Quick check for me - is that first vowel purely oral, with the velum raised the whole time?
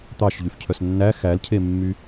yes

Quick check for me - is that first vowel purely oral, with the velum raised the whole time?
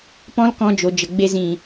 no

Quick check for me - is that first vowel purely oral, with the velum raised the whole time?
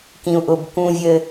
no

